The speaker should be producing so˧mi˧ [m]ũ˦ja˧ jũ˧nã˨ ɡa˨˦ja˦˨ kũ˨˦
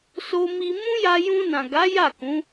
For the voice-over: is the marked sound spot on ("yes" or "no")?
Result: yes